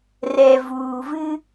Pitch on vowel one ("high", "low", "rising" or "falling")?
low